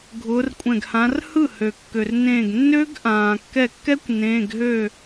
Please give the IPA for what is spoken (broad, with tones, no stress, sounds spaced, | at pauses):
ɡʱ ʊː˨˦ r kʷʼ ɛ̃˧˩ ɡ h ã˨˦ r h ɯ˥˩ h ø˩ kː ø˩ r n ẽː˧˩ ɡ nː ø˦˥ ɡ ʔ ãː˩ kː ɛ˧˩ kː ɛ˦˥ kʷ n ẽː˩˧˩ ɡ ɦ ø˥˩